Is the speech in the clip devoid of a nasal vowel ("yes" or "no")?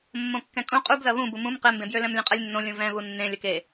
no